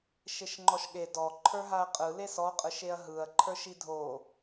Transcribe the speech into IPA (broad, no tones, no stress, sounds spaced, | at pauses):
ʃ e ʃ ŋ͡ǃ ɔ ʃ ɠ e d ɔ ǃʰ ə˞ ɦ a ɐ̯ qʼ ɯ l e s ɔ qʼ ɯ ʃ e ɐ̯ ɦ ɯ ɐ̯ ǃʰ ə˞ ʃ i dʱ o